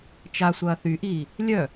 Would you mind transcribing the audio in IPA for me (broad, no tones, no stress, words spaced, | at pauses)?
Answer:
t͡ʃa sʷɐːθyʔiː | lʲœ